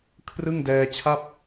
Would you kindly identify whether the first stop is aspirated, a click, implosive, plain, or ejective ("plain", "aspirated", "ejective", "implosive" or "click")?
aspirated